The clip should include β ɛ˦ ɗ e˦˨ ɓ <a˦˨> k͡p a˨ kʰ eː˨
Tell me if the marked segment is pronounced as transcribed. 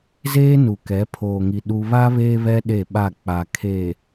yes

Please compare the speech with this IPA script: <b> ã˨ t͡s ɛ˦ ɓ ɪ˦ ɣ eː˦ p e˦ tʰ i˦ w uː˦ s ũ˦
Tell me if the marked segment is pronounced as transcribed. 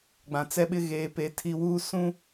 no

